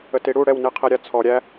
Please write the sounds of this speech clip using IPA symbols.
ə t i ɽ u ɽ ɛ w n i qʰ i ɾʲ a t͡sʰ ɔ ɾʲ æ

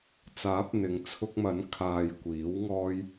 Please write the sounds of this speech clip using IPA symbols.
t͡s aː˨˥ p̚ n̪ ɪ˨ ŋ t͡sʰ ʊ˧ k̚ m ɐ˨˥ n kʰ aː˨ j kʷ iː˨˥ w ŋ ɔː˧ j

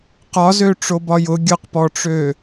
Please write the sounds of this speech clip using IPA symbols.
q ɒ z ø ʈ͡ʂ o b ɒ j ʊ ɡʲ ʊ q p ɔ ʈ͡ʂ ø

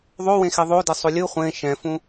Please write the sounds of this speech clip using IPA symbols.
ðˤ o w ẽ x e ðˤ o d ɛ sˤ o lʲ ɯ χʷ ẽ ʃ ɛ̃ f ũ

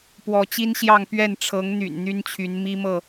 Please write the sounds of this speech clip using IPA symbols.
p w ɔ˨˦ t͡ɕ i˦ n ɕ j ɑ˥˨ ŋ p ɥ ɛ˥˨ n ʈ͡ʂʰ ɤ˨˦ ŋ n̪ y̰˨˩ n n̪ y˦ n t͡ɕʰ y˨˦ n m i˦ m ɤ˥˨

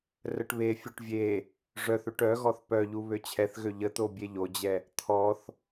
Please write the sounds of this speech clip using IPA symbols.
r ə ʈ β e fʲ o ʈ vʲ e | ʐ œ θ ø ʈ œ ɣ ɔ θ p œ ʎ u β ø t͡ɕʰ ɛ θ ɣ ø ʎ ə t̪ o bʲ e ʎ o d͡ʑ ɛ | t̪ʰ ɔ θ

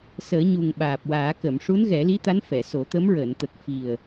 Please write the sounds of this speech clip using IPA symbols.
s əː˨˩˦ ɲ u˨˩ ŋ ɓ aː˨˩ p̚ w aː˨˩˦ k ə˨˩˨ m ʂ u˧˥ n ɣ ɛ˨˩˦ l i˧˥ t̪ a˧˥ n f ɛ˨˩˨ s o˨˩˦ t̪ ə˧˥ m ɹ əː˨˩˨ n t̪ ə˨˩ k̚ f i˨˩ ə̯

